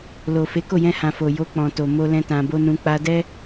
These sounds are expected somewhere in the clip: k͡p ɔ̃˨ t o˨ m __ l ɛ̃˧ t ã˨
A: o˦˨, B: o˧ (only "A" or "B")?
B